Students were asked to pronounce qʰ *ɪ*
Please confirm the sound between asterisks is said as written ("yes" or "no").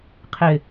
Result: yes